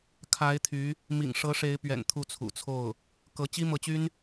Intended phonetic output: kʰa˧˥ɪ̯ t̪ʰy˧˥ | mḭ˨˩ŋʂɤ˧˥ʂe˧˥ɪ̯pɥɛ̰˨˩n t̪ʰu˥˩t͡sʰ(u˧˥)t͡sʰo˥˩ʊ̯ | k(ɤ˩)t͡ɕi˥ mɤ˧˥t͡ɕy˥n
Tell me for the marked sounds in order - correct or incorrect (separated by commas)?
incorrect, incorrect